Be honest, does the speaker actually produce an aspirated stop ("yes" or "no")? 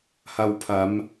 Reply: yes